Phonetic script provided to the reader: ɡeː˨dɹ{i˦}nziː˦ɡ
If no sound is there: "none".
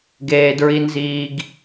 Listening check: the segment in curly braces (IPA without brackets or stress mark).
i˦